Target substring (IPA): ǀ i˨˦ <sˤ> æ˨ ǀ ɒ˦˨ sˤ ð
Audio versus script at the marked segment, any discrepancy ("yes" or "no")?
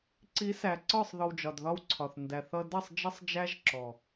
yes